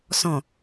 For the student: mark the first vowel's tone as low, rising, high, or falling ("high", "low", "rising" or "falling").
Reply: low